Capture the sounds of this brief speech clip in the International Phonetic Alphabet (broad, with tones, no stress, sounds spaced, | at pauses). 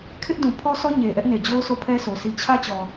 kʰ ɪ˦ ʔ d ũ˨ pʰ ɔ˦ s ɔ˦ ɲ e˨ ʔ ɛ˦ ʔ n e˨ d͡ʑ o˦ ʊ̯ s o˦˨ pʰ ɛ˦ s o˨ s i˨ t͡ɕʰ ä˦ t͡ɕ ɔ˨